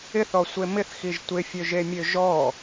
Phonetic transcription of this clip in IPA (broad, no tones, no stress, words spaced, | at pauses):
ɪθɔsʷe mɪθxiʒ tʷɪfʲøʒemʲø ʒɔ